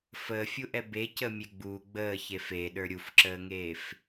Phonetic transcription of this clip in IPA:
f əː fʲ u ʔ ɛ b e c ə mʲ e ɡ͡b uː ɡ͡b əː ç e f e ɗ ə˞ ɾʲ u f ǁ əː ŋ eː f

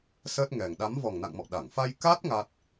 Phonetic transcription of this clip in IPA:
s əː˦˥ t̚ ŋ ɛ˨˩ ŋ ɗ a˨˦ m v ɔ˨˩ ŋ n a̰˧˨ ŋ m ɔ̰˧˨ ɗ a˧˩ ŋ f a˧ j k a˦˥ t̚ ŋ a˦˥ t̚

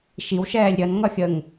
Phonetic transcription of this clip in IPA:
ʃ i w ʃ ɛː lʲ ɾʲ ʌ n ŋ ʌ xʲ ə ŋ

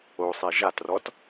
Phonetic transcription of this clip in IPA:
o sˤ e ʒ a t r ɔ t

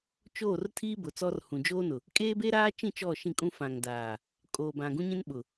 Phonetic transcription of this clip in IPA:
t͡ʃ oː˦˨ r tʰ iː˦ b ʊ˨ t͡s ɔ˦ r h ũ˨ d͡ʒ oː˦ n ʊ˨ | kʼ eː˦ b e˦ ɾ aː˦ t͡ʃ ĩ˦˨ t͡ʃ ɔ˦˨ ʃ ĩ˦˨ kʼ ũ˦ f ã˨ ŋ d aː˨ | kʼ oː˨ b ã˨ ɡ ũ˦ ɲ ĩ˦ n ɓ ʊ˨

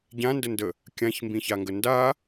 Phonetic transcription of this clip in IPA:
ɟ ã n d ə n d ə | kʲ ã ç m b ĩ ç a ŋ ɡ ə n d a

